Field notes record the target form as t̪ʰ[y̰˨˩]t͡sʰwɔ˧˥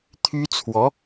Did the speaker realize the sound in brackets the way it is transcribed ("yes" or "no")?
no